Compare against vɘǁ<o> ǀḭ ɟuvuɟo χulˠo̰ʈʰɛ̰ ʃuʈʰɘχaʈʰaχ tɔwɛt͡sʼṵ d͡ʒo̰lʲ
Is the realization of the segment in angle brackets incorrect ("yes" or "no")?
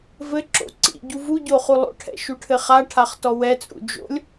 yes